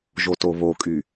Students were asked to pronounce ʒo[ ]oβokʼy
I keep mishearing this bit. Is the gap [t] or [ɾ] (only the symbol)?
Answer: t